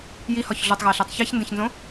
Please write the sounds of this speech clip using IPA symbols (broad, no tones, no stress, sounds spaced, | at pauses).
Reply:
j i h ɒ ç ɮ u tˤ ɣ æ ɬ æ tˤ ç æ ç n d ẽ ç n z õ